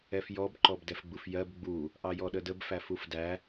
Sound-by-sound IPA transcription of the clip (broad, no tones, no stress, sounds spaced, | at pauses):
ɛ f j ɔ b ǃ ɔ b d ɛ f ɡ͡b u f j ɜ b ɡ͡b u | ʔ ɑ j ɔ ɗ ə d ə b f æ f u f d æ